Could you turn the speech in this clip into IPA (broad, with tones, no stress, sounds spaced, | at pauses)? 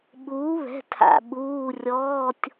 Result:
ɓ uː˩˥ β ɛ̤˩˧˩ tʰ a̰˩ ɓ uː˩˧˩ rʲ ɔː˩˧˩ tʲ